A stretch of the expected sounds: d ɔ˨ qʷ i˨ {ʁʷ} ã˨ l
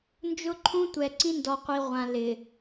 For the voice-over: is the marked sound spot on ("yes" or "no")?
yes